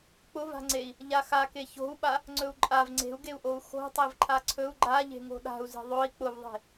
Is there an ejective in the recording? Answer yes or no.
yes